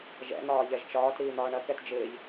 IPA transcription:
ʒɛ̰n̪ɒː ʎɛʒt͡ʃɒːt ɾiːn̪ɒːɳɐ kɛtd͡ʒɪːʎ

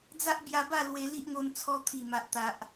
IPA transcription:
d͡za˦ʔbja˧ba˥˧ lwe˧li˦ʔŋo˧n t͡sʰɔ˧t̪ʰi˨˩ma˨ʔ t̪a˨ʔ

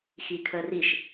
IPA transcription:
xikʰə riʃ

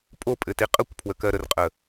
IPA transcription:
pʼo pʼɘtiqʼəkʷpʰwə kɜɾərqʼə

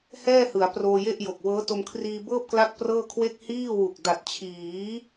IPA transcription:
hɛː˥˩hɯ˩˦a̯ proː˧je˥˩ʔjo˨˩k̚ wɤː˦˥to˧mkʰriː˧bɤː˥˩p̚ kla˥˩k̚prɤː˥˩kʰwe˥˩k̚ hiː˥˩wu˨˩k̚ da˨˩t̚t͡ɕʰiː˩˦

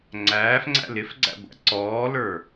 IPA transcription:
ŋ͡ǀæːfŋ͡ǀæ̰l ɪfɡ͡ǀæ̰ɡʷæ̰ ǀɔːlə˞

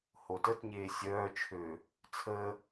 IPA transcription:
hotətɲeː sʲœːt͡ʃʰøː | t͡sʰəː

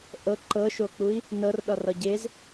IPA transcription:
ʔɤ ǃɤʃok͡pui̯ | nɤrɗɒrɒ ɟez

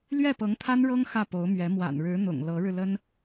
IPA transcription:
lɥɛ˥˩pɤ˧˥ŋt̪ʰa˥n ɻɤ˥ŋ xä˥˩po˧˥ʊ̯mɥɛ˧˥ mwa̰˨˩nɻɻ̩˧˥n̪ʊ̰˨˩ŋ lɤ˧˥ɻɻ̩˧lə˥n

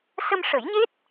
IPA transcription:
sə˧mʂə˨˩˦jɲe˦˥t̚

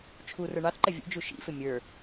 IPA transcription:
t͡ʃʰu rə˞ɳɑθǃɛ vʲṵd͡ʒu ʃḭfɪ mʲə˞

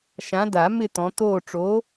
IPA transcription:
ʃã˨˦da˨˩˦ mɪ˥˧t̪ɔ̃˨˦t̪oː˥˧ ʈ͡ʂoː˨˦

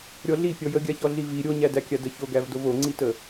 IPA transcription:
ɾʲɔɮi pʲɔjəɡʲaçɔ ɮivi ɾʲoɲædækʲa dəçoɡæv dovoŋ͡ǀitə

